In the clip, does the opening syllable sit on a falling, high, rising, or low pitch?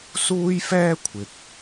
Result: high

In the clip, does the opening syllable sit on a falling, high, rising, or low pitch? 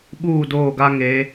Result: falling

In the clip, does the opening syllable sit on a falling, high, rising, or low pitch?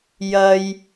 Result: low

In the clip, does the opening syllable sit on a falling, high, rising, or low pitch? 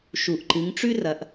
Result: low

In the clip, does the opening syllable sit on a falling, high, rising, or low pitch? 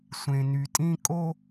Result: low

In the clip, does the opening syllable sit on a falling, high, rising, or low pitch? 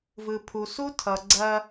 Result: low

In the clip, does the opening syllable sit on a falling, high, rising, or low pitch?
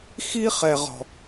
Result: high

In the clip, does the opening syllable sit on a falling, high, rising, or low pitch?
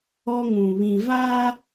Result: high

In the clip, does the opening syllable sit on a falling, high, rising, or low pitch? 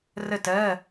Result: falling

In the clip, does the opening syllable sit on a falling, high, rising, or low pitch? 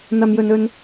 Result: high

